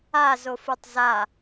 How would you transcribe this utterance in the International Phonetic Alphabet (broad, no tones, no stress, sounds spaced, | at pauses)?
a z o f u tˤ z a